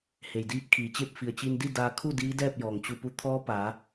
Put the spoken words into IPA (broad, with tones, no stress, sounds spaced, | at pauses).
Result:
h e˩ j d iː˧˥ p̚ kʰ iː˩ t͡ɕ e˥˨ p̚ f i˩ ə̯ t͡ɕ i˧ n d i˥˨ d aː˧ kʰ u˥˨ d iː˧˥ d ɛː˥˨ p̚ j ɔː˩ ŋ t͡ɕ u˧˩ p u˧ t̪ʰ ɔː˧˥ p aː˩˧